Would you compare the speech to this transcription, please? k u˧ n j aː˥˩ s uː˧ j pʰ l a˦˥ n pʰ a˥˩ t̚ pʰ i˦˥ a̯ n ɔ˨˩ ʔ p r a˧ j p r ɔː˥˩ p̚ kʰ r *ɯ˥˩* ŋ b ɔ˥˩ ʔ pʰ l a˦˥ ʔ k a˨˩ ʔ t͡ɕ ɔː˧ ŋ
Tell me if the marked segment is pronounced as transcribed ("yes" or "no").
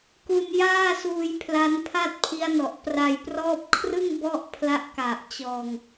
yes